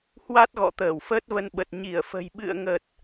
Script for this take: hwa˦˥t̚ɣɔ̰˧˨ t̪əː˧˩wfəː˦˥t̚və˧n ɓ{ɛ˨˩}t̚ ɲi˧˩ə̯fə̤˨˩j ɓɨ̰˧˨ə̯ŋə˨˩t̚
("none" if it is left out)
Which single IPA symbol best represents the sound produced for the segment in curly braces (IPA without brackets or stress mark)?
ə˨˩